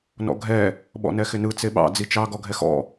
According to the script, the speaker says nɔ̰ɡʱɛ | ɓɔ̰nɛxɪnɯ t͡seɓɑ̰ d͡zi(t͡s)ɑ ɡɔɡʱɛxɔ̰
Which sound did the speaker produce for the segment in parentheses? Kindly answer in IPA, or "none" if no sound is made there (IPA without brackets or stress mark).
t͡ʃ